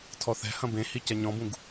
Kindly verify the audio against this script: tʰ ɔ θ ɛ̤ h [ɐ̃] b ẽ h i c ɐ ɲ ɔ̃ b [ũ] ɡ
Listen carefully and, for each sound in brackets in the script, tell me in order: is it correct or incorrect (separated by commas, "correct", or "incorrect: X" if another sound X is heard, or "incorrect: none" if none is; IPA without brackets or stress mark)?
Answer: correct, correct